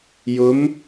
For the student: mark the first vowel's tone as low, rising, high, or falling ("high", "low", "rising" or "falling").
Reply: rising